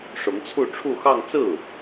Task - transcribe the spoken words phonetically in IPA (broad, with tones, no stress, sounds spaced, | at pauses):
ʂ ʊ˧˥ ŋ t͡sʰ u˥˧ ʈ͡ʂʰ u˥˧ x ɑ˥˧ ŋ t͡s ɹ̩˥˩